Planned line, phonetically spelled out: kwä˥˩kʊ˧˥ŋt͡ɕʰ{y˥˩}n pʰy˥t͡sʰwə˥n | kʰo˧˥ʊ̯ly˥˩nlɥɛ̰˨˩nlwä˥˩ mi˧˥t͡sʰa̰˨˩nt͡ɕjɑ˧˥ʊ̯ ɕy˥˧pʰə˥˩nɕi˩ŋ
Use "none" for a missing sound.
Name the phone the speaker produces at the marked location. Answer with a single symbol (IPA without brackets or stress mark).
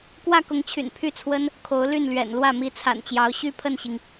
y̰˨˩